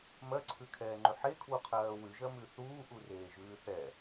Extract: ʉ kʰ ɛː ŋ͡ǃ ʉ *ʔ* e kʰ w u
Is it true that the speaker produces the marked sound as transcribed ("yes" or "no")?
no